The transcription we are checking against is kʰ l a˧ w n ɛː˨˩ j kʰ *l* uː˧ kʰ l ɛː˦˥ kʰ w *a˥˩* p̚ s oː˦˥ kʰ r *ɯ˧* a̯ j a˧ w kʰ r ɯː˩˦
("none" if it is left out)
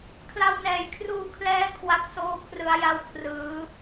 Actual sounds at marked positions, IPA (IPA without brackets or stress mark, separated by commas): r, a˦˥, ɯ˩˦